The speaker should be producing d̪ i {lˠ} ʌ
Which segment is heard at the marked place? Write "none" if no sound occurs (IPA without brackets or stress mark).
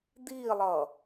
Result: lˠ